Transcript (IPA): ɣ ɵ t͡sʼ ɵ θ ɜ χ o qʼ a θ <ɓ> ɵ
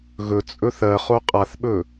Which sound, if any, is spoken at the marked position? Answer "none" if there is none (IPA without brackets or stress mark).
ɓ